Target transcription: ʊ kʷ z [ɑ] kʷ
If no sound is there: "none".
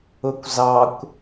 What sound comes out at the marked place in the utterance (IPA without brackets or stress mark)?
ɑ